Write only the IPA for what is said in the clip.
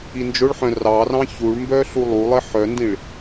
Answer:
ind͡ʒʊɭħœ̃ rɑrɑ̃ çuɭmbœ ɬulˠulˠɪ ħœndĩɭ

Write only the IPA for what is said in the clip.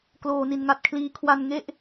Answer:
kloː˧ni˧nŋa˦˥t̚kʰliː˦˥ kʰwa˧nŋe˥˩ʔ

